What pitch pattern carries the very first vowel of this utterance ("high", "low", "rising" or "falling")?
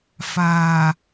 low